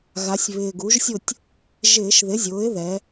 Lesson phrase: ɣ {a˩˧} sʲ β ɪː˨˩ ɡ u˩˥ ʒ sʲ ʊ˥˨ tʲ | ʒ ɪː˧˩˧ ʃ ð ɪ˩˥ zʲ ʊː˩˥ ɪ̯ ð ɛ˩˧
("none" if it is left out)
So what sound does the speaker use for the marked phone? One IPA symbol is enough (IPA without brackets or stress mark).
a˩˧